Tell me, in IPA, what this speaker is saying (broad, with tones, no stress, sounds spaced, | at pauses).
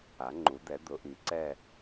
a˩˧ ŋ͡ǃ u˩˧ d̪ ɛ˩˧ d̪ ʊ˩˧ ʔ i˩˧ ǀ ɛ˦˨